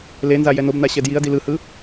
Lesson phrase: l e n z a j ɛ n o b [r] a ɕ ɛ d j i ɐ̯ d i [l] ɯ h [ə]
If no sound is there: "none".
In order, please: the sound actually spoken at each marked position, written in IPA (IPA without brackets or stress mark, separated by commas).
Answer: n, l, ɯ